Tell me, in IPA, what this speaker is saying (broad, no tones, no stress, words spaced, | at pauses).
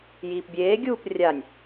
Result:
jiːpbʲeːɡʲuːp rʲanʲ